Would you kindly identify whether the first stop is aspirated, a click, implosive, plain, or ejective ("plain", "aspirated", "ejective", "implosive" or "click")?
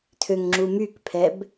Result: aspirated